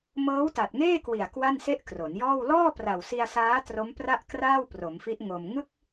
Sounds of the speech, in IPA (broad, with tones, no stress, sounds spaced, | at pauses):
m ɤː˦˥ w t a˨˩ t̚ ŋ eː˥˩ k w i˨˩ a̯ k w a˥˩ n s e˥˩ ʔ k r o˩˦ n j ɔː˥˩ w l ɔː˥˩ p r a˨˩ w s i˧ a̯ s aː˦˥ t r o˦˥ m p r a˥˩ ʔ k r aː˥˩ w p r o˩˦ m f i˦˥ ʔ ŋ o˧ m ŋ ɯ˥˩ k̚